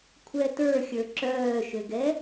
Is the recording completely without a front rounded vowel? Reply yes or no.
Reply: no